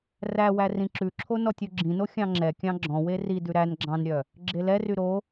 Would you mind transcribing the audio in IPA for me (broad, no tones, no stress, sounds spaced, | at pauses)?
r æ w æ r ĩ ǁ ʉ ǁʰ o n ɔ tʲ u ɡ͡ǁ ĩ n o xʲ ɑ̃ ŋ͡ǁ ɛ kʲ ɑ̃ ɡ͡ǁ ɔ̃ w e r i d ʉ ɾ æ n ɡ͡ǁ ɑ̃ n ɾʲ œ | ɡ͡ǁ e l ɛ r y ɾ o